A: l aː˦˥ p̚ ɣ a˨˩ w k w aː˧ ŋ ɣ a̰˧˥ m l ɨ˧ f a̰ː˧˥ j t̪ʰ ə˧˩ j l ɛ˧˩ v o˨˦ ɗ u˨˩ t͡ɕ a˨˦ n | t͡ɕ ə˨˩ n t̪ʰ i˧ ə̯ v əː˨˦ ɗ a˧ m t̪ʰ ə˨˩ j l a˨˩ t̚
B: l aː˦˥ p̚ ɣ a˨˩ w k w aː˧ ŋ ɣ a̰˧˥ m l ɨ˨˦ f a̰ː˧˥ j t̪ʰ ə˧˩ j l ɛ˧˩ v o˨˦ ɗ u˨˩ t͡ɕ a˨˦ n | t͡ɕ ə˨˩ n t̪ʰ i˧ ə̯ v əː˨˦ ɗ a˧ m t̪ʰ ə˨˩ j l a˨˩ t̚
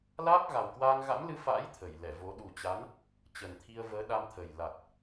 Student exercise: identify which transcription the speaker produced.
A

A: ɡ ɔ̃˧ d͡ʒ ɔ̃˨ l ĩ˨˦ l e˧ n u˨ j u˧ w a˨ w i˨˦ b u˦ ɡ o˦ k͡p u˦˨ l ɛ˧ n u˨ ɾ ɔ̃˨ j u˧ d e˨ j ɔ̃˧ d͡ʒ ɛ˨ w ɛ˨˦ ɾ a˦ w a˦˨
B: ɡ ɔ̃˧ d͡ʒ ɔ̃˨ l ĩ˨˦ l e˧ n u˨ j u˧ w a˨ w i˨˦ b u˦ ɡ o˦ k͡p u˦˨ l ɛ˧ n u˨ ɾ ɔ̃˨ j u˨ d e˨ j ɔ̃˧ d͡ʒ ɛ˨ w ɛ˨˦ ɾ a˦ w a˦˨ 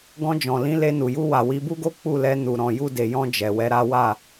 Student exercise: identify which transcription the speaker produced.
A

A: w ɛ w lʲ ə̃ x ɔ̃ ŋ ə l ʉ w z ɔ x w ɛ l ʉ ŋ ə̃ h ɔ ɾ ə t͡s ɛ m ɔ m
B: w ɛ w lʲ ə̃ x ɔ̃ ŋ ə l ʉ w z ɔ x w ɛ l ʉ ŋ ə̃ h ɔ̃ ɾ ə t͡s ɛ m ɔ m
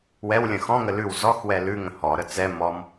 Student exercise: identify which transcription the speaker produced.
A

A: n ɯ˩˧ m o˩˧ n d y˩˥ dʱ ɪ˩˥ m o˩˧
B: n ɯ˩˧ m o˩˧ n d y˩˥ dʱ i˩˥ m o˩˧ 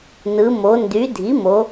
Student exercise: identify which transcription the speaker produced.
B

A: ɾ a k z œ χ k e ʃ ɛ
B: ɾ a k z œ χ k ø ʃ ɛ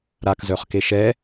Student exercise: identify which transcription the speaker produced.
A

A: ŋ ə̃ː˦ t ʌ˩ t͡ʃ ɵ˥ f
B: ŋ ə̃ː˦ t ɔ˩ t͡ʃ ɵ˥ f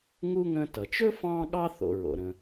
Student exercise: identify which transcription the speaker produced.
A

